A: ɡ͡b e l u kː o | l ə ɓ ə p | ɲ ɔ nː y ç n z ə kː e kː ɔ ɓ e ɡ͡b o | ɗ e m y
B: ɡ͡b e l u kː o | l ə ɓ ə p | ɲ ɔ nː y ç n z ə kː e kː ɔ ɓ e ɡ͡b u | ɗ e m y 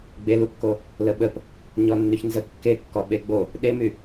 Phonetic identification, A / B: A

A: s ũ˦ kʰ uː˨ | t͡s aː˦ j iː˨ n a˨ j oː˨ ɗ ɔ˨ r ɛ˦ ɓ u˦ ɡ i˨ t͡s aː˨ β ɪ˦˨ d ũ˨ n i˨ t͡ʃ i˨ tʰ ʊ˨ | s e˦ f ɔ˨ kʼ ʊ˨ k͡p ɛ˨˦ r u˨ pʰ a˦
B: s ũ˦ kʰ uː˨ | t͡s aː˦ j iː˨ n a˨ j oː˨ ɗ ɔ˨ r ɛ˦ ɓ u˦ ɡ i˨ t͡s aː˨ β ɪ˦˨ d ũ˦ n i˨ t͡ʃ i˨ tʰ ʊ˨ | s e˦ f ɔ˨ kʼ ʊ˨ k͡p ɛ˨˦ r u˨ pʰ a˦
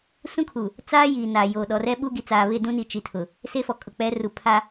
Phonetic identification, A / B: B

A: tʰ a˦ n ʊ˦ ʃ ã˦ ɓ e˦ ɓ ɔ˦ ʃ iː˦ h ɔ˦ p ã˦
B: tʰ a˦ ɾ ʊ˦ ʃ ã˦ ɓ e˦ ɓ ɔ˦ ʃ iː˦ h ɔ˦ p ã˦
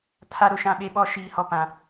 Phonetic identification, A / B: B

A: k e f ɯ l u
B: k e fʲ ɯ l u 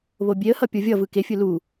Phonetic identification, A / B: B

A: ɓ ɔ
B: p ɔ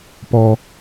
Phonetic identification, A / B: B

